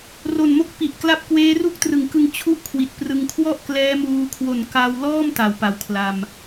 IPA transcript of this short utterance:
r o˨˩ n m o˦˥ k̚ p i˨˩ ʔ k l a˦˥ p̚ k w eː˦˥ r u˥˩ k̚ t r ɯ˨˩ ŋ k ɯ˧ ŋ t͡ɕʰ u˥˩ ʔ kʰ w i˨˩ t̚ p r ɯ˧ ŋ kʰ w ɔ˥˩ ʔ k l ɛː˦˥ m uː˧ kʰ w o˨˩ n k a˧ w l ɔː˥˩ m t a˨˩ w p a˩˦ w kʰ l a˧ m

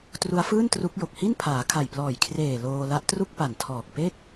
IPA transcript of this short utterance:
t r u˦˥ a̯ f ɯː˥˩ n t r u˦˥ k̚ j o˨˩ k̚ h i˥˩ n pʰ aː˩˦ kʰ a˨˩ j p l ɔː˨˩ j kʰ r eː˨˩ l oː˧ l a˦˥ ʔ t r u˥˩ k̚ p a˨˩ n tʰ ɔː˨˩ k̚ p e˥˩ k̚

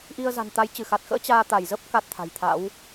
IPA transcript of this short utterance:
ʔ i˧ ə̯ z a̤˨˩ n t̪ a˨˦ j t͡ɕ ɨ˧˩ x a˨˩ t̚ x ə̰ː˧˥ t͡ɕ aː˧ t̪ a˧˩ j z ə˦˥ p̚ k a˦˥ t̚ t̪ʰ a̤˨˩ j t̪ʰ a̰˧˥ w

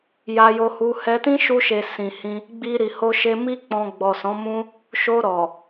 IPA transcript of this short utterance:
j a˧ j o˧ h u˧ h ɛ˧ t ĩ˦ ʃ u˧ ʃ e˨ s ĩ˨ h ĩ˧ | ɡ͡b i˧ ɾ i˨ h o˧ ʃ e˧ m i˦ k͡p ɔ̃˧ ɡ͡b ɔ˨ s ɔ̃˨˦ m ũ˦ | ʃ o˧ ɾ ɔ˨

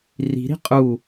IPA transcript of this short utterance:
r i̤ ɾ i̤ qʼ u

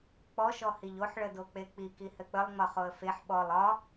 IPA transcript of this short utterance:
k͡p ɔ ʃ ɔ h i ʎ o ħ ɭ ə d o k͡p e k͡p i k i h ɘ k͡p ə lˠ ŋ͡m ɒ χ o ə̯ f e ħ ɓ ɔ lˠ ɒ

